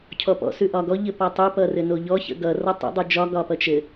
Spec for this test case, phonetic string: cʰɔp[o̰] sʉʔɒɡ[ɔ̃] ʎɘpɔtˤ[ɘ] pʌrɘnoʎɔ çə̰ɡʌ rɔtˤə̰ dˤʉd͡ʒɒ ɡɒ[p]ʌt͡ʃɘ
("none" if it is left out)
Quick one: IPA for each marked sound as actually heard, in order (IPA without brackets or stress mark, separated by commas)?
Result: ɔ̰, ɔ, ʉ, p